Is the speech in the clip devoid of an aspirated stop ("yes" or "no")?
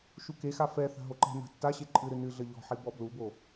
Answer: yes